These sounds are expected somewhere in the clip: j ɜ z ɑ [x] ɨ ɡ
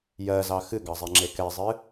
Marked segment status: correct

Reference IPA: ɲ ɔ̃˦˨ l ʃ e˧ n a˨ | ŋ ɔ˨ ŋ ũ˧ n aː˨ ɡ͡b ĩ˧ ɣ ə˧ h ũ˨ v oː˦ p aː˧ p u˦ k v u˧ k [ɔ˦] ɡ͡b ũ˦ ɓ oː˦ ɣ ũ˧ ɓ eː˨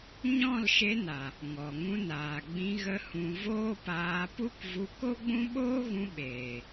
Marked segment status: incorrect: o˦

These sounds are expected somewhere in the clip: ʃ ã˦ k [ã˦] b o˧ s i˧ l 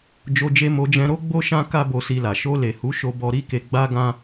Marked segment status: incorrect: a˦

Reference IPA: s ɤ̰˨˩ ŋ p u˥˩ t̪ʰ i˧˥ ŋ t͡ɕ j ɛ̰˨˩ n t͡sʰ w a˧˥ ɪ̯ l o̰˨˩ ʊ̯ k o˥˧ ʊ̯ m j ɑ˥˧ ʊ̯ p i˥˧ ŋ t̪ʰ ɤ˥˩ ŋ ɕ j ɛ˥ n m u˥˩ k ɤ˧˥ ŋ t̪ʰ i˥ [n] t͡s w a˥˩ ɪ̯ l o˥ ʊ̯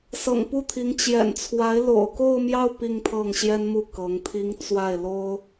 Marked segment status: incorrect: ŋ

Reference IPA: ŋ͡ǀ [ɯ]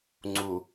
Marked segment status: incorrect: u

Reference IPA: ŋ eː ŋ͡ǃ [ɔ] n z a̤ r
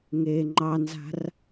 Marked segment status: incorrect: ɑ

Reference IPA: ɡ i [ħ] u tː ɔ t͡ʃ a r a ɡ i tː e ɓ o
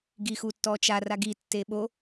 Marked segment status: incorrect: x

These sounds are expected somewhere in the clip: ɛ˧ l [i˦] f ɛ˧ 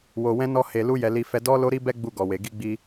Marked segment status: incorrect: i˧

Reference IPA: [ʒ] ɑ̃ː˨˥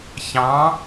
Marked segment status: incorrect: ç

